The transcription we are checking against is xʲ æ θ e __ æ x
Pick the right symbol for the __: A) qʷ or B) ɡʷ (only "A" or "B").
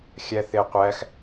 A